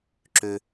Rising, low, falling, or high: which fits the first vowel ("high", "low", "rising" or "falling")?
high